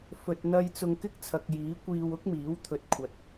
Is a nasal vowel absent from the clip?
yes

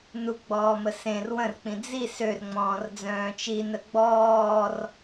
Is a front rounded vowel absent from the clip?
no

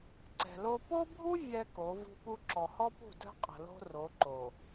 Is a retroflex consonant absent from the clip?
yes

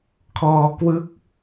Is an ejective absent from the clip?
yes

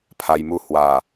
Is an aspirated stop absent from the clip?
no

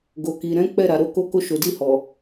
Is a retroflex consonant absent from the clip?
yes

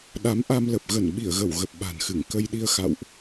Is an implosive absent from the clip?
no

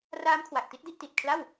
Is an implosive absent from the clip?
yes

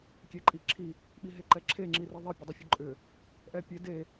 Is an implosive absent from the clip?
no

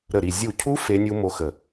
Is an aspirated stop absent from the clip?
no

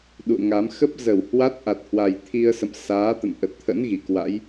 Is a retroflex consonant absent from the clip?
yes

